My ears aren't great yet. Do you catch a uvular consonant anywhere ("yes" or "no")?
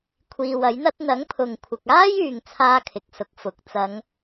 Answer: no